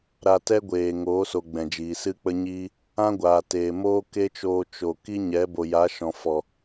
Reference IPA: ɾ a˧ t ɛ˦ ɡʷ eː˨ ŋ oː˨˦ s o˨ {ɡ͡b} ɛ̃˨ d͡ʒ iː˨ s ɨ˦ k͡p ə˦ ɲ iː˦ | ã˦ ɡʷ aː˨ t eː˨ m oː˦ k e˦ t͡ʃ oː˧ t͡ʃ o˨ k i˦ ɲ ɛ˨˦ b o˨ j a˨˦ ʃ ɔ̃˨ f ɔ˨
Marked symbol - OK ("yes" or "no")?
yes